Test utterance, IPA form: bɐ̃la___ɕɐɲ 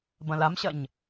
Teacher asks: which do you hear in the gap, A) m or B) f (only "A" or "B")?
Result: A